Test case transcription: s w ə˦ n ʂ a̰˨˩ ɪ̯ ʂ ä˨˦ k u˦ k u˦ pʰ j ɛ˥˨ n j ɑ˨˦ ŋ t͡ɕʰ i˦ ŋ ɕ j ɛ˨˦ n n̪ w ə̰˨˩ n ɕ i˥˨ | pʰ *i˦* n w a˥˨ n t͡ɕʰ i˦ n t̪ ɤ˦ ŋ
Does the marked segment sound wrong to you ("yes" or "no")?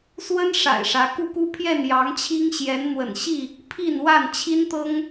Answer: yes